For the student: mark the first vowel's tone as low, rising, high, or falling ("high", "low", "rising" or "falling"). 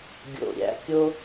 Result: low